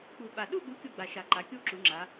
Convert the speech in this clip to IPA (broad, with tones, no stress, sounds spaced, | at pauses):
k͡p u˨˩ ɓ a˨˩ ɗ u˦˨ ɠ u˩˥ kʲ u˨˩ ɡ͡b a˨˩ ʃ a˨˩ ǃ a˩˥ kʲ u˦˨ ǁ u˩˧ ŋ͡ǁ a˩˧